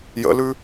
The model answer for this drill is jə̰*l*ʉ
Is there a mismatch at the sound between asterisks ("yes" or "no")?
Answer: no